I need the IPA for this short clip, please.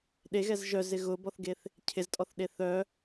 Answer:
ɗ e ɣ ɛ z ʒ œ z ɪ ɣ ʊ b ɔ θ ɡ e θ | cʰ ɪ z tʼ ɔ θ ɗ e θ œ

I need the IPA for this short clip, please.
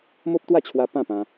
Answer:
m o˦ p̚ t̪ w a˥˧ t͡ɕʰ w a˧ p ã˥˧ p ã˧

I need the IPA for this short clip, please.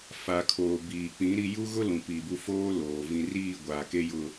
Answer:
f a˨ kʰ oː˨ b iː˨ k͡p ĩ˨˦ ɾ i˦ j u˦ ɣ ʊ˦ l ũ˨ p iː˨ b u˦ f oː˦ l oː˨ v ĩ˨ r iː˦˨ ɡʷ aː˨ k e˦ j ʊ˦

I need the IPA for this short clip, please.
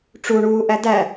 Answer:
ʈ͡ʂ u ɳ uː ʔ æ d æ

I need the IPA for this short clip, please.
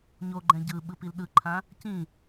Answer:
ɲ o ɡ͡ǃ ɛ̃ ɟ ɯ ɓ ɯ p i l ɗ ɯ ǃʰ ã | c ĩ

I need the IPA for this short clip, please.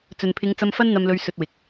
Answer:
t͡s ɵ˨ n pʰ ɪ˨˧ ŋ t͡s ɐ˧ m f ɐ˥ n n̪ ɐ˧ m l ɵ˧ ɥ s ɵ˧ t̚ w ɪ˨ k̚

